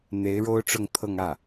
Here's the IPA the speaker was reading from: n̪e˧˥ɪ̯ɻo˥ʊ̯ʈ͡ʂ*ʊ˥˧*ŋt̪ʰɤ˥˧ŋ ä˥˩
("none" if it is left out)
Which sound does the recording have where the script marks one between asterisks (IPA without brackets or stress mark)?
ʊ˥˧